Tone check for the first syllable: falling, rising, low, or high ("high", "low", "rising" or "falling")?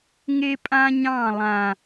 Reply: high